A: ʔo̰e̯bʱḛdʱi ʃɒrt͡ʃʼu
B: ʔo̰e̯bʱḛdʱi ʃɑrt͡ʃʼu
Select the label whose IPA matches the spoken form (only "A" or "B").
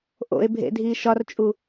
A